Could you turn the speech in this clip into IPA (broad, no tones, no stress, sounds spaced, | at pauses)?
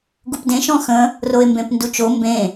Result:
ɡ u p d ẽ ʃ ɔ̃ x ə̃ | r o e̯ m b ẽ p n d u t͡ʃ o m b ẽ